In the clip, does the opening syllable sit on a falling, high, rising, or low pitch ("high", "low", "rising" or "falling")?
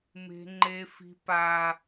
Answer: high